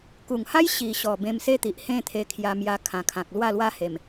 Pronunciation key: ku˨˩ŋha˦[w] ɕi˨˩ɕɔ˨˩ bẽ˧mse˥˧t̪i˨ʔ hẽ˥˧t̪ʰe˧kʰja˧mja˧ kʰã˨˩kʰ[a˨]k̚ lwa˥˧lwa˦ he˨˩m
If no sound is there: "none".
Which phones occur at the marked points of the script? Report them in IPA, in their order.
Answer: j, ã˨

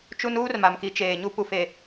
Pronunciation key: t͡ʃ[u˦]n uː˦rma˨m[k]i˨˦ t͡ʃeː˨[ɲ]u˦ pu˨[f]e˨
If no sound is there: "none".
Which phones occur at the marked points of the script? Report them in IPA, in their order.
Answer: u˦, k, ɲ, f

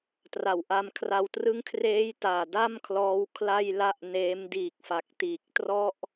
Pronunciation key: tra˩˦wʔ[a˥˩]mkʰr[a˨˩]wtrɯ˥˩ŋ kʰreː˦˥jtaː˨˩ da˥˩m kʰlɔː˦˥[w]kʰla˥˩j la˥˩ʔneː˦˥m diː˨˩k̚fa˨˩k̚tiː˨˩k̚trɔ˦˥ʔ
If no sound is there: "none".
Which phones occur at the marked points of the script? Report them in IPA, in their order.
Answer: a˧, a˧, w

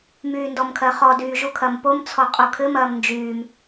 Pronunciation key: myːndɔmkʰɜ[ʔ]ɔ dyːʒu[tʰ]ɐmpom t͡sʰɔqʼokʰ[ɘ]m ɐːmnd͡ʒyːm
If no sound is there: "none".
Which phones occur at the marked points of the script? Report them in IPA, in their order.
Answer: χ, kʰ, ɘ

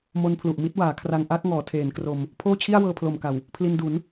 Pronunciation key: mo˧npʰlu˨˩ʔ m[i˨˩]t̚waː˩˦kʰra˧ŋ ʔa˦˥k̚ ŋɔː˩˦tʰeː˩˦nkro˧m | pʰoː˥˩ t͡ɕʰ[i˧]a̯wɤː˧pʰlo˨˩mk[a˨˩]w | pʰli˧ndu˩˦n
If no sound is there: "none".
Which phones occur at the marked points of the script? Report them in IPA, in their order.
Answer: i˥˩, i˥˩, a˨˩

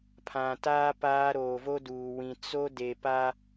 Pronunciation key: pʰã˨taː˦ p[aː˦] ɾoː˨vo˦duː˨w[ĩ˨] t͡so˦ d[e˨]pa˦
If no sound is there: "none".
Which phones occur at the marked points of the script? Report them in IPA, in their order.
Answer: aː˦, ĩ˨, e˨

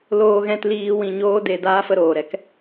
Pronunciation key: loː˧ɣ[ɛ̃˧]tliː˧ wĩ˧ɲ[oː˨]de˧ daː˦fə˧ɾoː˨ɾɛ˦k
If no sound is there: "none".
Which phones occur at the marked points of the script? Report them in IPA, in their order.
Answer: ɛ̃˧, oː˦

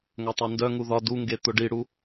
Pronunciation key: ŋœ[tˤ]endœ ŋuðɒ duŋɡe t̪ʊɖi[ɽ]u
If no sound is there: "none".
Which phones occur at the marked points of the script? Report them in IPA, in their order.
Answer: tˤ, ɽ

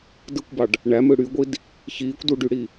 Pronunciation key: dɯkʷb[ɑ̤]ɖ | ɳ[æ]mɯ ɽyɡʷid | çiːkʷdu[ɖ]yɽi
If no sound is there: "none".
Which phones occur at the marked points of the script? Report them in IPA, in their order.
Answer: ɑ, æ, ɖ

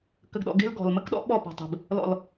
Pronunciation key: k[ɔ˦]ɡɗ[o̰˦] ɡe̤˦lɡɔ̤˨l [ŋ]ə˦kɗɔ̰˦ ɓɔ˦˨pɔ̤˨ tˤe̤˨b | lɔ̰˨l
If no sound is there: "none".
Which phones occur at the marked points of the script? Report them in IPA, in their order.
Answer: ə˦, ɔ̰˦, m

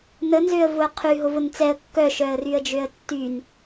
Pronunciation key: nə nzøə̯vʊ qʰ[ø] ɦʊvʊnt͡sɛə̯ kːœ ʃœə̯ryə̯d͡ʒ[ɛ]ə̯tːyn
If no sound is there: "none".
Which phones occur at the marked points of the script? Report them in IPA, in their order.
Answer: y, ø

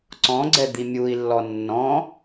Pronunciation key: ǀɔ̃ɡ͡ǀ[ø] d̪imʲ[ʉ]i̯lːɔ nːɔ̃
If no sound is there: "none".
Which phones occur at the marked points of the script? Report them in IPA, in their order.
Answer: ɛ, u

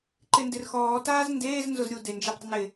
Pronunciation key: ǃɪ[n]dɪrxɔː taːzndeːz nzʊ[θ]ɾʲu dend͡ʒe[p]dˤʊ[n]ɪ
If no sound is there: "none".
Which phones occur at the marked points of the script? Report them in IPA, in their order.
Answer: n, z, p, n

